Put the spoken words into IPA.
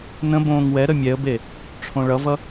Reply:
n ə̃ b õː ŋ w ɛ ɾ ə mʲ ɛ ə̯ b e | ʈ͡ʂʰ õ ɭ ʌ v ʌ

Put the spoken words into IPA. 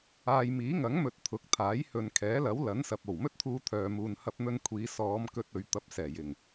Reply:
aː˧ j m iː˨˥ ŋ ɐ˨˥ ŋ m ɵ˨ t̚ t̪ʰ ʊ˨˥ k̚ t̪ʰ aː˨˥ j h ɵ˨ n kʰ ɛː˨˥ l ɐ˨˥ w l ɐ˨˥ n s ɐ˨ p̚ o˨˩ w m ɵ˥ t̚ t̪ʰ uː˧ t̪ʰ œː˨ m uː˨ n h ɐ˧ p̚ n̪ ɵ˧ n kʷʰ iː˨˧ s ɔː˨˧ m k ɵ˧ t̚ ɵ˨ ɥ t̪ ɐ˨˥ p̚ s ɛː˨˩ j ɪ˨˩ ŋ

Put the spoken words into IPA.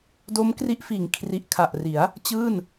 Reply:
d o˦˥ m k r i˦˥ ʔ f iː˩˦ ŋ kʰ r i˨˩ ʔ kʰ a˨˩ ʔ r i˩˦ a̯ | t͡ɕ ɯː˥˩ n

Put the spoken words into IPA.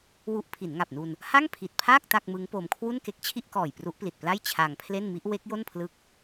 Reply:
w u˦˥ ʔ pʰ i˩˦ n ŋ a˨˩ p̚ n u˧ n | h a˥˩ ŋ pʰ i˨˩ t̚ pʰ aː˥˩ k̚ t a˥˩ k̚ m ɯ˦˥ ŋ p o˧ m kʰ w u˥˩ n k e˦˥ k̚ t͡ɕʰ i˥˩ ʔ k ɔː˨˩ j p r u˦˥ ʔ p l i˨˩ t̚ p l a˥˩ j t͡ɕʰ a˧ ŋ pʰ l e˥˩ n m i˦˥ ʔ w e˦˥ k̚ j o˥˩ n pʰ l ɯ˦˥ k̚

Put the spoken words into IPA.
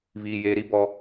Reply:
β iː˨ j e˨ ɾ i˦ b ɔ˦

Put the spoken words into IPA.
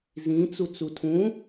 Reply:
z ĩ t͡s u t͡s u tʰ ũ

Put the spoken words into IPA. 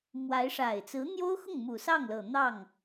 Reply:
m w a˧˥ ɪ̯ ʂ a˨˩ ɪ̯ t͡s ɹ̩˧˥ n̪ j o˥ ʊ̯ x ʊ˥˩ ŋ m u˨˩ s ɑ˥˩ ŋ l ɤ˨˩ n̪ ɑ˥˩ ŋ

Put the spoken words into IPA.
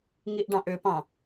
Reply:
ŋ i ʔ ɖ ɑ̃ ʔ ʏ p ɑ̃

